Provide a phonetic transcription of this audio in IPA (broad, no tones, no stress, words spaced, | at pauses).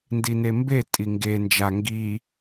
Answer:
ndinembe tʼiŋɡe nd͡ʒa ŋɡi